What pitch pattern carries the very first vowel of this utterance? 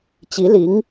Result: rising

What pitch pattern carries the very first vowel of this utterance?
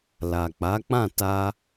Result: low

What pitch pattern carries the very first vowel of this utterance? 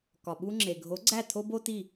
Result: low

